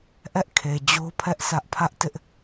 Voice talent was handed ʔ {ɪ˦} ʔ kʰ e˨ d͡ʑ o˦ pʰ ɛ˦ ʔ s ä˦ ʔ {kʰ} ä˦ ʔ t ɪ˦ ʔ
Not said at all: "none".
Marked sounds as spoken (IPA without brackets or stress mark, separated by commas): ɛ˦, pʰ